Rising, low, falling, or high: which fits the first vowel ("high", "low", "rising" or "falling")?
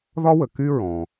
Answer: high